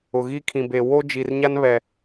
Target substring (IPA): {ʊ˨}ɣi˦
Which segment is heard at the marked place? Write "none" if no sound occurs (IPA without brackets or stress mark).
ʊ˨